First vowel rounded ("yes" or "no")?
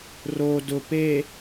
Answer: yes